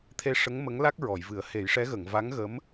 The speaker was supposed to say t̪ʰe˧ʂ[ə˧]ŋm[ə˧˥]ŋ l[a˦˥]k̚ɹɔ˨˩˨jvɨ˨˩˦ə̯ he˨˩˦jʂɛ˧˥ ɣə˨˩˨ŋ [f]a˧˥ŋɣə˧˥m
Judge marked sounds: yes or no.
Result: no, yes, yes, no

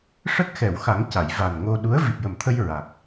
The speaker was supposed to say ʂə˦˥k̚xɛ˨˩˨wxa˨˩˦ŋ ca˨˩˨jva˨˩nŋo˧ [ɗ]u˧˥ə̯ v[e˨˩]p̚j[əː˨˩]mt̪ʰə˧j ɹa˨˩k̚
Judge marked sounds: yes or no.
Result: yes, no, no

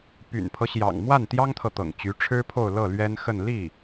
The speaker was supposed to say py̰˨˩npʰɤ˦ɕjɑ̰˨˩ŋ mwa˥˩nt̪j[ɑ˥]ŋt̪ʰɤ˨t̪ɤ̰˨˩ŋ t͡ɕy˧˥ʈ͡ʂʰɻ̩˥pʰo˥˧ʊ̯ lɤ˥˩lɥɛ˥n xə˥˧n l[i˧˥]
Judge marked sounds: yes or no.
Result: yes, no

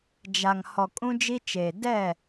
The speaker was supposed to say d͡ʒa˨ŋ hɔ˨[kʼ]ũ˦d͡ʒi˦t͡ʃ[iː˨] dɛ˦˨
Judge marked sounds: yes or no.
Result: yes, no

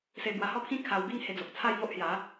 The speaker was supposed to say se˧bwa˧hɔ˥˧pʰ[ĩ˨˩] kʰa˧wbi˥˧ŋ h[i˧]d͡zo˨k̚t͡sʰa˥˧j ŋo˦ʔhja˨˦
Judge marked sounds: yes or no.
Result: no, no

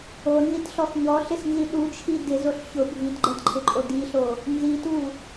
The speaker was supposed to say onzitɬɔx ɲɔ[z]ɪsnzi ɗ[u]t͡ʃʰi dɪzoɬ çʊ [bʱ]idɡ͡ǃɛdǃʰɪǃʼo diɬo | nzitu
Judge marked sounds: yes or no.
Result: no, yes, yes

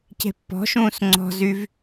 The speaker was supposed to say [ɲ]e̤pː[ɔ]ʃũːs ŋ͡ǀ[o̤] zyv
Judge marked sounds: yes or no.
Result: no, no, no

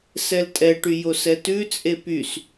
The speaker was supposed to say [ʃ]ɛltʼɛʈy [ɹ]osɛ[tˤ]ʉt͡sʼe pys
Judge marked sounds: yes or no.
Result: no, no, no

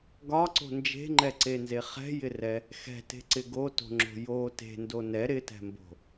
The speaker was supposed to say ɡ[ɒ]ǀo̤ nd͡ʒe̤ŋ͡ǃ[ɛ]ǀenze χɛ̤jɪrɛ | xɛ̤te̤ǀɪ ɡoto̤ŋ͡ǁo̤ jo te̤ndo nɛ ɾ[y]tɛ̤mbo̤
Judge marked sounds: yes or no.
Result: yes, yes, no

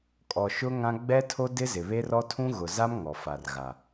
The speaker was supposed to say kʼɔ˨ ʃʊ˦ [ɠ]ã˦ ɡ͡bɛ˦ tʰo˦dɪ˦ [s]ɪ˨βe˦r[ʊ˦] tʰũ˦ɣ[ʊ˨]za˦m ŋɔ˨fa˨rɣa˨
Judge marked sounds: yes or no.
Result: no, no, no, yes

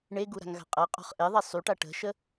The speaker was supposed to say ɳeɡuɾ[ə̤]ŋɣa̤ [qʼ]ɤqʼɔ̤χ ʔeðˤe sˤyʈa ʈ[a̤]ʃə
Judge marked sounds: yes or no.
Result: no, yes, no

